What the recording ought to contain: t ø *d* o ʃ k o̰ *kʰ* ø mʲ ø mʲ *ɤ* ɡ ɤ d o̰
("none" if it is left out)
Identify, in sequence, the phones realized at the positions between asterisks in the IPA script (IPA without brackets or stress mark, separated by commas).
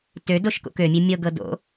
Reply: d, k, ɤ